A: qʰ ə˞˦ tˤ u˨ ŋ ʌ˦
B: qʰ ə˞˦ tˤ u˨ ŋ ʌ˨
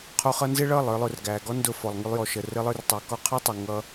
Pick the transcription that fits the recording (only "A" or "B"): A